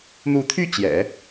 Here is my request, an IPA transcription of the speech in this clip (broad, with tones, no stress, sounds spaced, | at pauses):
n̪ u˧˥ t̪ʰ y˥˩ t͡ɕ j ɛ̰˨˩˦